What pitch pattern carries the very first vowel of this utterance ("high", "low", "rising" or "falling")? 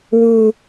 high